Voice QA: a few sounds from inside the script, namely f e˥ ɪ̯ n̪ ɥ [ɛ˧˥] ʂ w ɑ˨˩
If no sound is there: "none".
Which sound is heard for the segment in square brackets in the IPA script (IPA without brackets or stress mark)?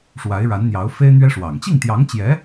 ɛ˥